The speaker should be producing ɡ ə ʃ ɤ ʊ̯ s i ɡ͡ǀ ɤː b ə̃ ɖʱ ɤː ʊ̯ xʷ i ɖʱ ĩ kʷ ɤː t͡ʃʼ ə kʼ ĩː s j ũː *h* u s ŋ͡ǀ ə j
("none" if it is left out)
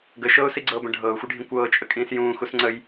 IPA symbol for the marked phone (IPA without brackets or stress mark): x